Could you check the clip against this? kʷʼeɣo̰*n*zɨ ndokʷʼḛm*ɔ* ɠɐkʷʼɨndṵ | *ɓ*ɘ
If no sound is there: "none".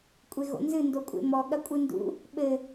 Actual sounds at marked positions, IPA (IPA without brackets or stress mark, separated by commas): n, ɔ, ɓ